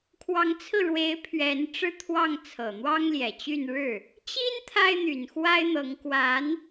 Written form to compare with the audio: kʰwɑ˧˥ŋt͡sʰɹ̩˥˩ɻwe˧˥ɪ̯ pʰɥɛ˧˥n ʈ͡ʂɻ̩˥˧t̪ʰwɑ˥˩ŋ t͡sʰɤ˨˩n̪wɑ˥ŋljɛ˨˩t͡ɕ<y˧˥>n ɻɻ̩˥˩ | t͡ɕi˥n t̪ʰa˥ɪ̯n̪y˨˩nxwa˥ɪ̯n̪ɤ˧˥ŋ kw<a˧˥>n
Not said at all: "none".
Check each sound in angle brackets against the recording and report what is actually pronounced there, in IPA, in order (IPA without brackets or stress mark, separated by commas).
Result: y˥˧, a˧˥